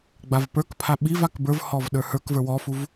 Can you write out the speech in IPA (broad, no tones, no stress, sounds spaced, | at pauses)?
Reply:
ɡ͡b a v p ə˞ k pʰ a ɓ i v a k b ə˞ v h ɔ v ɗ ə˞ h ə˞ k v ə˞ w ɔ f u v